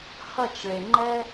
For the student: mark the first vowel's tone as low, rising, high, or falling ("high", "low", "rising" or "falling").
falling